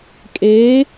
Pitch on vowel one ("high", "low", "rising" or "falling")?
rising